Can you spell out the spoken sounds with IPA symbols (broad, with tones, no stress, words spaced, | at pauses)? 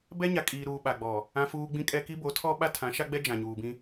bɛ˦ɲa˨kʼiː˨ɾuː˨ ɓa˨ɡ͡bɔ˨ | ã˦fuː˦ ɡ͡bĩ˦kʼɛ˦ ki˦bo˨˦tʰɔ˦ ɓa˦tʰã˨˦ʃa˦ɡ͡bɛ˦ d͡ʒã˨ɲuː˨bĩ˦